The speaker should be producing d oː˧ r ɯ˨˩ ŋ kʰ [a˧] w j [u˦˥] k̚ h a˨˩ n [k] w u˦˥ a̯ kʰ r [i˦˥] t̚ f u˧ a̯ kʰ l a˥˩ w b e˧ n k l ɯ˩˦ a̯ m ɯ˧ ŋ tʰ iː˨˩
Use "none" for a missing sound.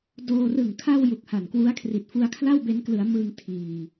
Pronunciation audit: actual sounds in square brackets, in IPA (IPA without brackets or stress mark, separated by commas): a˧, u˨˩, k, i˨˩